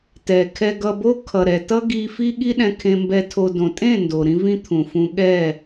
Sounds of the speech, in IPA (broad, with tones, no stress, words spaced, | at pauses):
tɛ˨kʰɛ˧ ɡʌ˧bo˦ kʰʌ˨ɾɛ˨tʌ˦ɡi˧ fi˦ɠi˦ ɗɛ̃˧kʰẽ˧mbɛ˧tʰo˧ dõ˨tʼẽ˦˨ ndo˨ɾĩ˦vĩ˦ t̪ʰũ˨fũ˧ɠɛ˦˨